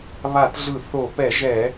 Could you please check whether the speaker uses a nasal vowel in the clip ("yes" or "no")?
no